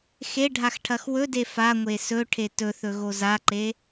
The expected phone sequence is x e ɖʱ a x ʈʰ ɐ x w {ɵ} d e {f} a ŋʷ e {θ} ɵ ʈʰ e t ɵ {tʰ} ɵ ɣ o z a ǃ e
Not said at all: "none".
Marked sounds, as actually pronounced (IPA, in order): ɵ, f, s, θ

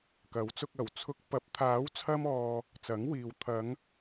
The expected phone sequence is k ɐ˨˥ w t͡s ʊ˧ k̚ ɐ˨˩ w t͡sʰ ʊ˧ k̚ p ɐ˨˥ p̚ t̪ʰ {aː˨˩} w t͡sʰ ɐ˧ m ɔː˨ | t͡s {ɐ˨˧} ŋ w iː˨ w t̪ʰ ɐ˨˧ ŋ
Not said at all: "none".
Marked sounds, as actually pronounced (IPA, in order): aː˨˥, ɐ˨˥

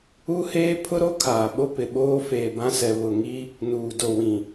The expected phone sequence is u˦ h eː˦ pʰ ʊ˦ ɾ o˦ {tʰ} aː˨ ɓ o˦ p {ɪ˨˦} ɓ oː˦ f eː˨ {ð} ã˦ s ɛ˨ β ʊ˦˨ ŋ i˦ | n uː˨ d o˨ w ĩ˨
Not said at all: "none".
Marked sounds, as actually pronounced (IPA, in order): kʰ, ɪ˨, b

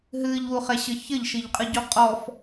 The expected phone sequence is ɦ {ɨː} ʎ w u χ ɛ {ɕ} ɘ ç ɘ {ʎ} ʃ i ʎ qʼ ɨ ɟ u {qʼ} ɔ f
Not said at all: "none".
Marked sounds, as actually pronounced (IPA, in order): ɨː, ɕ, ʎ, qʼ

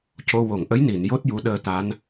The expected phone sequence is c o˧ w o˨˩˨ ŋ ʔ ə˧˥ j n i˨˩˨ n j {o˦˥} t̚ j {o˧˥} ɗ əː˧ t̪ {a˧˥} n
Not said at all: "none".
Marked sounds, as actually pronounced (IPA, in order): o˦˥, u˧˥, a˧˥

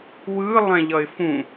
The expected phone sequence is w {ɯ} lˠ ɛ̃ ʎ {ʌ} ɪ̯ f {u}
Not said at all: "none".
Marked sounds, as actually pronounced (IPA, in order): ɯ, ʌ, ũ

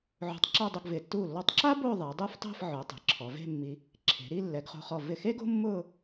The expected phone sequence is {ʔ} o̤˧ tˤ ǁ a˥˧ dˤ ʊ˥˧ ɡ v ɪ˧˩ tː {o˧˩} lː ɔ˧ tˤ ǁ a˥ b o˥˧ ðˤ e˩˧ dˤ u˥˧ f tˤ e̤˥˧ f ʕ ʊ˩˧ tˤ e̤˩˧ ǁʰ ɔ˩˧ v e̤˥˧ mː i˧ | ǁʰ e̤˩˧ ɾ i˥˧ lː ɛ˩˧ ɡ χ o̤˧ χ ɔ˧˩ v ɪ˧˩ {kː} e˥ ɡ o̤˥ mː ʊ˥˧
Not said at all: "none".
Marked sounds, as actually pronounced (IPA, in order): ʕ, u˧˩, x

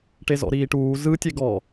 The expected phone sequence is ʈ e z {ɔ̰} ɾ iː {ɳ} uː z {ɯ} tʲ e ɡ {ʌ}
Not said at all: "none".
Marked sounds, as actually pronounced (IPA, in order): ɔ̰, ʈ, ɯ, ɔ

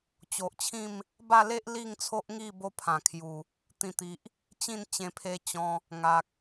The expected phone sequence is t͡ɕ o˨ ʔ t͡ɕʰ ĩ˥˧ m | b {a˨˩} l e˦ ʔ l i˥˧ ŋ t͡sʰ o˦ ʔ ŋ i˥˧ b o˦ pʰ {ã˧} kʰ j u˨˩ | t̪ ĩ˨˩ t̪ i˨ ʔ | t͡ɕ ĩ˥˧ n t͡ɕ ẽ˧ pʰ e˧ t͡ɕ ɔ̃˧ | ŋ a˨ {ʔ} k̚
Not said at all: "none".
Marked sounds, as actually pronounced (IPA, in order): a˥˧, ã˨˩, none

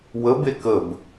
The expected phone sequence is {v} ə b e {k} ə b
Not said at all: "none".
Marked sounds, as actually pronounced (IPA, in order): w, k

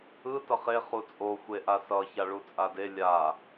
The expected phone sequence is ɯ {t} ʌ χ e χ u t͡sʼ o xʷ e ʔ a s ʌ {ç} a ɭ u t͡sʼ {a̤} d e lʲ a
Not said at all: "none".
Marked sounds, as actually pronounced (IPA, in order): t, ç, a

